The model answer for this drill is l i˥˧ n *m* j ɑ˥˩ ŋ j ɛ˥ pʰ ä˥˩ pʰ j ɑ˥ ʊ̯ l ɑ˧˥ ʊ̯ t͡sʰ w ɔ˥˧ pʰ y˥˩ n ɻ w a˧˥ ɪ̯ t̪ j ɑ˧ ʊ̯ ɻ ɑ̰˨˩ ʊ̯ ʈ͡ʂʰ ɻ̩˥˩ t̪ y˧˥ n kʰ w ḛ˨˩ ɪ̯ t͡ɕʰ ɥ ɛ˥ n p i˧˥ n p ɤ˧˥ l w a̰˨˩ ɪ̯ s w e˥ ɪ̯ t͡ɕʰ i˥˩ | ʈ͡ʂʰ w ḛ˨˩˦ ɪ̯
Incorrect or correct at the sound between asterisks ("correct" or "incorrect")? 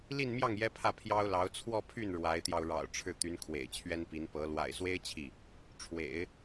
correct